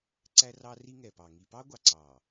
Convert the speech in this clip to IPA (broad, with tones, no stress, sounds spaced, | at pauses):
ǀ æ˦ r ɑ˦ r i˦ ŋ ɛ˨ p ɑ˨ ŋ i˨ p ɑ˦ ɡʷ ɑ˨ ǀ ɑ˨